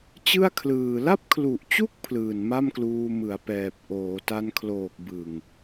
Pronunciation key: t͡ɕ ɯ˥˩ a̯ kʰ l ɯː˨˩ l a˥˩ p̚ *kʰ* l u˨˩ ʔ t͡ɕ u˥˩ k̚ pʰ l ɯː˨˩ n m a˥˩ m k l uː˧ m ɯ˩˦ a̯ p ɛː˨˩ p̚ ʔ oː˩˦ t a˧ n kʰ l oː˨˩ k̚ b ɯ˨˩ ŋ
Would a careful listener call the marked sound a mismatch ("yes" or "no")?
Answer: no